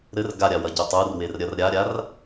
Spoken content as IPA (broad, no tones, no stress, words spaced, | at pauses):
ɾɘr ɡaɾʲawɐɟu tˤurwerɾʲɐr ɾʲaɾʲar